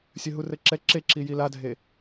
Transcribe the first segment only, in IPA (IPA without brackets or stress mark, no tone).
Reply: sʲ